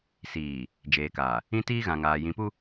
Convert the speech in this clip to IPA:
siː˨ | d͡ʒeː˨kaː˨ | ĩ˦tiː˦ɣã˨ŋaː˨ jĩ˨pu˦

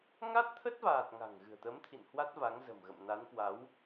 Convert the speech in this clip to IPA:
ŋa˦˥t̚t̪ʰə˦˥t̚vaː˨˩t̚ ŋa̤˨˩ŋɣɨ̤˨˩ə̯t̪ə˨˦mt̪ʰḭ˧˨n hwa˦˥t̚va˨˦ŋzə̤˨˩mɣə̰˧˨m na˨˦nkwa˨˦w

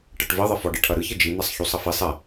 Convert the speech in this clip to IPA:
ʈɐʈvɘðˤɐfɔ ɖɨʈʰɐɾɨç ɘd͡ʒi n̪asˤçusˤɐfisˤ ɛ

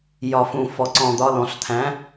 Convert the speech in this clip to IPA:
jɒ˧fũ˧ fɔ˧ǀɔ̃˧d̪ɒ˧˥lɔ̃˧ɬ t̪ʰæ̃˧˥

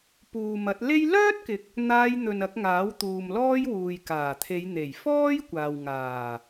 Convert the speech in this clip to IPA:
puː˨mɐ˨˥t̚ le˥j lœː˥t̚kɪ˨k̚ | n̪aː˧jn̪ɵ˨n ɐ˨˥k̚ŋaː˨˥wt̪uː˨m lɔː˥jwuː˨jkaː˨˩ t̪ʰe˨˧jn̪e˨˩j fɔː˥j kʷaː˨wŋaː˨˩

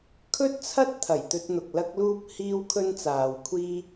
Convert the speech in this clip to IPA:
kʰɵ˥t̚t͡sʰɐ˥t̚ t̪ʰɐ˨˩jt̪ɵ˧t̚n̪ʊ˨k̚ lɐ˥k̚luː˥p̚ hiː˥wkʰɵ˥nt͡saː˨wkʷʰiː˥

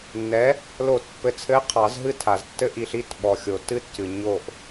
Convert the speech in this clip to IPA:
nːɛ˨˥ | lo˨˩˦tpːɘ˨t͡sʰɘ˨˥ɪ̯ qʰɑ˨˩˦zɦɨ˦˨ tʰa˨ztːɘ˦ ʔi˨ɬi˦˨t ɓɔ˨xʲo˨tɨ˦tcɨ˨ ɲo˦˨ʔ

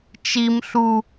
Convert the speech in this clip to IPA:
t͡ʃim ɬu

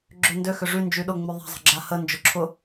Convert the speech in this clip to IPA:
ɡ͡ǁøndø xʏʐy nd͡ʒyɗʊ ŋ͡myðˤa̤ zˤə̤ɡ͡ǁahə nd͡ʒʊǁʰʊ

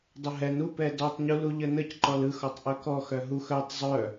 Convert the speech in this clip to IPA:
dˤəɦɛn upɛ dɔtˤɲulu ʎənəcǃɔl ɯxɔtˤ ʔœkɔ xœɦux œtˤ zˤœ

